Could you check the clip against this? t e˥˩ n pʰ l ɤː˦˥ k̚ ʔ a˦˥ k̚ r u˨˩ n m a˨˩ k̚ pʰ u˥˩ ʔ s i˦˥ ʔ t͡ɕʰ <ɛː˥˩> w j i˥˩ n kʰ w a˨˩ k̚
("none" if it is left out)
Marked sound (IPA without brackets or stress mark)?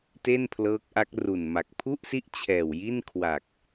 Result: ɛː˨˩